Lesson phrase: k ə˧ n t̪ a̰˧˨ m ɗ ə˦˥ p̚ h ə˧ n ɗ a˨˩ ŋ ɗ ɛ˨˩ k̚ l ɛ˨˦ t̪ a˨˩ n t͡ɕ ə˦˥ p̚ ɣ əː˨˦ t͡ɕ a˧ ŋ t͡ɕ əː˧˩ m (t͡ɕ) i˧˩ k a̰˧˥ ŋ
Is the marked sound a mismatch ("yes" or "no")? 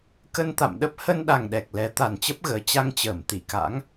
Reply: yes